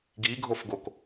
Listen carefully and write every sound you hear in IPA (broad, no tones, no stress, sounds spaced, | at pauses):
ɡ i ɡʱ o f ɡ o k